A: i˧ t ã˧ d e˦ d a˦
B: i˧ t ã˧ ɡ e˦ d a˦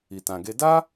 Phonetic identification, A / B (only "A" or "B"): B